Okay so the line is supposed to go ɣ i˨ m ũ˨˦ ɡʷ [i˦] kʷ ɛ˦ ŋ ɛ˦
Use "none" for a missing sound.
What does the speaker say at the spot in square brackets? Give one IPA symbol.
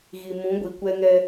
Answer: i˨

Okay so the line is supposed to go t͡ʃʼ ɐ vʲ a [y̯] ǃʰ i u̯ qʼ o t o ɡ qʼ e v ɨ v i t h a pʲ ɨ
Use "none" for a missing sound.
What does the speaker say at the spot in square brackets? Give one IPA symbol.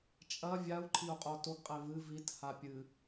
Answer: u̯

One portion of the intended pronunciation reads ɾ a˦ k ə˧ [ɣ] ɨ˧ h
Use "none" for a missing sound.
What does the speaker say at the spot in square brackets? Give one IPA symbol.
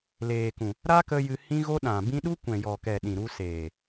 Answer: j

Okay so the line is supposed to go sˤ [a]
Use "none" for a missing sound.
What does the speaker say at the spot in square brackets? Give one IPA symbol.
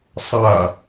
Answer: a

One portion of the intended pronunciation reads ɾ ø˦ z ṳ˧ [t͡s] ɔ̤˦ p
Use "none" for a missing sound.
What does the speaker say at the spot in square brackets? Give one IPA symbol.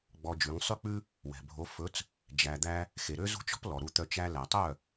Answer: t͡ʃ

